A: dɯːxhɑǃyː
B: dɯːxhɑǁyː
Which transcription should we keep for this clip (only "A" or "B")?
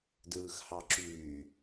B